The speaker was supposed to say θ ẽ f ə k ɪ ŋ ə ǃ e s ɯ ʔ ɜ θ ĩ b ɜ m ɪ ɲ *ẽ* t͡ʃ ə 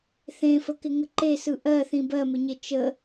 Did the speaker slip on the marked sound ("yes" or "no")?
yes